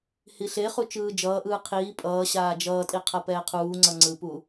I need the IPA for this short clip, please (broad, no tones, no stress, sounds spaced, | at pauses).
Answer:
h i ɬ e χ u t͡ʃ ɯː d͡ʒ ʌː ʔ ɯː qʰ iː pʼ ʌː ɕ aː d͡ʒ ʌː tʼ i qʰ ʌ p ɛː qʰ uː ŋ͡ǀ ʌ ŋ͡ǀ ɯ p u